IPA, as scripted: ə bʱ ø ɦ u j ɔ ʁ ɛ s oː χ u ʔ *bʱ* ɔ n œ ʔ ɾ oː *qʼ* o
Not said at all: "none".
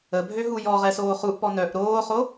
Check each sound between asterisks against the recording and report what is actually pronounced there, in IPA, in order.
p, χ

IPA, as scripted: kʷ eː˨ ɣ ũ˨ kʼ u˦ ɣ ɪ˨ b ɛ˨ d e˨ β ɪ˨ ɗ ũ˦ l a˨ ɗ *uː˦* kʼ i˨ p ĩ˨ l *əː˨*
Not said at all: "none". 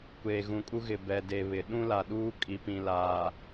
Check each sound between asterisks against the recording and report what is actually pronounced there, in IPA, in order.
uː˦, aː˨

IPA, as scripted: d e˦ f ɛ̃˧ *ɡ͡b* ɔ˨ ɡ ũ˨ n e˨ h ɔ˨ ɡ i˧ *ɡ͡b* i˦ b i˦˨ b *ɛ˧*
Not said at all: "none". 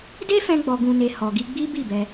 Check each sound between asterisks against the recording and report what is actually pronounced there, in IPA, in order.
ɡ͡b, ɡ͡b, ɛ˧

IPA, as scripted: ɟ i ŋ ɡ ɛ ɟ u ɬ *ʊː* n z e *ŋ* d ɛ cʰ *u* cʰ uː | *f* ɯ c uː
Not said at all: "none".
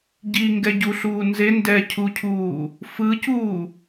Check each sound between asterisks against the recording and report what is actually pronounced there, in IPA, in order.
uː, n, u, f

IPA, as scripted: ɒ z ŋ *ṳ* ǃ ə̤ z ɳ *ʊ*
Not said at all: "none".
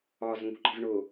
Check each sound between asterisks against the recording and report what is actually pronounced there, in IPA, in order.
ṳ, ʊ

